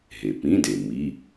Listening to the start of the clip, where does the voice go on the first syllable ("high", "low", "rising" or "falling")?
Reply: low